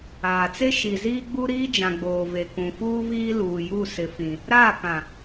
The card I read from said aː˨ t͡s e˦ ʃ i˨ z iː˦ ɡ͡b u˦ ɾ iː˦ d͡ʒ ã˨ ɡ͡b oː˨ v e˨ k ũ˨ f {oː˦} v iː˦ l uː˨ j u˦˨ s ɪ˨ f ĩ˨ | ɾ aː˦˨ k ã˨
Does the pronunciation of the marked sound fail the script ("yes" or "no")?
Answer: yes